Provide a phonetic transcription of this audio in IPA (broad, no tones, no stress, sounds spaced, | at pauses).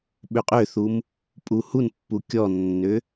ɓ ʏ qʼ ʏ θ u m | pʼ u h u n pː u kʲ ɔ nː ʏ